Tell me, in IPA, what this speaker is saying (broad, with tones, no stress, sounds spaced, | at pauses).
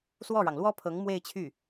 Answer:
s w ɔ˥˩ ɻ ɑ˩ ŋ l w ɔ˥ pʰ ɤ˧˥ ŋ m w e˥˧ ɪ̯ t͡ɕʰ y˥˩